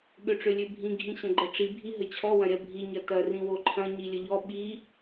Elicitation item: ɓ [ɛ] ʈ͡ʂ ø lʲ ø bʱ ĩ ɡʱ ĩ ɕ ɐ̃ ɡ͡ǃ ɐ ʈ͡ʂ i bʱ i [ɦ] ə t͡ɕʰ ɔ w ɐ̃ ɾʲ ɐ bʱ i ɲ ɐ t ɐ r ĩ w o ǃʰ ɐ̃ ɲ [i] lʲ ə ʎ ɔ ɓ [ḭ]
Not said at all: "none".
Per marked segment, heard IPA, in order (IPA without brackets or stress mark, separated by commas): ø, ɦ, i, i